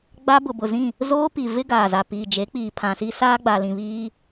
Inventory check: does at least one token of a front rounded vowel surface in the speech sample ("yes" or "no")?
no